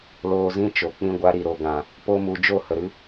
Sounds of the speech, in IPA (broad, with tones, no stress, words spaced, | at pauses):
loː˧zĩ˦t͡ʃo˨ k͡pĩ˧ɡʷa˧ɾi˨ ɾo˨ɡã˨ | po˦mu˧ d͡ʒo˦˨hə˨ɾɨ˦